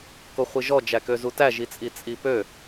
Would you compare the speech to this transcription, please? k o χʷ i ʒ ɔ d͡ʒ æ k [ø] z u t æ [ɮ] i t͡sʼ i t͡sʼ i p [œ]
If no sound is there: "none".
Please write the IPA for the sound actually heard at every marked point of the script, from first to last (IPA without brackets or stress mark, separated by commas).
ø, ʒ, ø